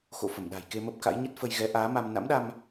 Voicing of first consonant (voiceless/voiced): voiceless